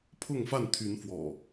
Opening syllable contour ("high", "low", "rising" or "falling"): falling